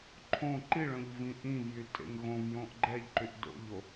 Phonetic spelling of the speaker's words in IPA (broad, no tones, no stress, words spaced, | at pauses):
ǃʰõ ǃiɭœ̃ʎvĩ ʔĩvjytʼḛŋ ɣõvjõʔ ɡ͡ǃɛʎǃyʔ do̰ʎo